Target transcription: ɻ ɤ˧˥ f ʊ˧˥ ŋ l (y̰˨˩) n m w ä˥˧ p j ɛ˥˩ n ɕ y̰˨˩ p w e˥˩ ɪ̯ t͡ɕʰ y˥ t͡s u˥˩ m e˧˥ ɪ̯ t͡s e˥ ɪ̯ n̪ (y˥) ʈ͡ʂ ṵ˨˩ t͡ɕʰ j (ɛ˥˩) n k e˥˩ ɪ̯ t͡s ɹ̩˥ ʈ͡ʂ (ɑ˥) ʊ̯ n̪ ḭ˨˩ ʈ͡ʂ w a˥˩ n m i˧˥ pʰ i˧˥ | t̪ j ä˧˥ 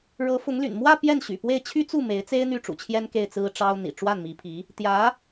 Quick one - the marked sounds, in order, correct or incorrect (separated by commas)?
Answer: correct, incorrect, incorrect, correct